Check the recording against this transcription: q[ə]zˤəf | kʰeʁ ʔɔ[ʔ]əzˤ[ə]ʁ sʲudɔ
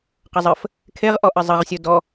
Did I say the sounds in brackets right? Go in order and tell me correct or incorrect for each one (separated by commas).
correct, correct, correct